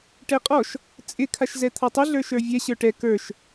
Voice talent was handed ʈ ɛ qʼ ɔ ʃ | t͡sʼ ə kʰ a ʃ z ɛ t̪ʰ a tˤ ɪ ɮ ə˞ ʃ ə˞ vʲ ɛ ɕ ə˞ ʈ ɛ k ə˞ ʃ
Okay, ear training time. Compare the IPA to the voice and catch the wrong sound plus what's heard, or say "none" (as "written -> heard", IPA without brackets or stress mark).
ə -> ɪ